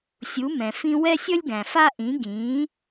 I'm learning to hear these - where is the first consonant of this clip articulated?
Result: tongue tip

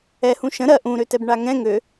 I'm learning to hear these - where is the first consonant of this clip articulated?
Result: throat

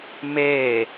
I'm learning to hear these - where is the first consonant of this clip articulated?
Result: lips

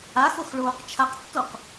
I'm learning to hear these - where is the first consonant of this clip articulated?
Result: velum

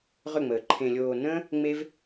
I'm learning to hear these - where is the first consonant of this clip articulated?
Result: uvula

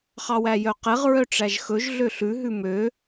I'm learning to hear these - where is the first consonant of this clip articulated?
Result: uvula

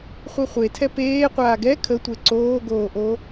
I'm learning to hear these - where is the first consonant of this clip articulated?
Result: uvula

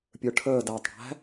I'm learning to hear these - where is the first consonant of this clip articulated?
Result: lips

